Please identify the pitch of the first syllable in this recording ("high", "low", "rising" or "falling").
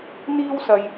high